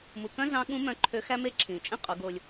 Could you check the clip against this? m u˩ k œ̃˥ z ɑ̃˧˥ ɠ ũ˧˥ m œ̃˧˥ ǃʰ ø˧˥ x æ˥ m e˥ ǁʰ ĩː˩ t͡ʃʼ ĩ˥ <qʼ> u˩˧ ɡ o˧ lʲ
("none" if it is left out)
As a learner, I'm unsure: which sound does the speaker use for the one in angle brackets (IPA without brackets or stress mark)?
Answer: qʼ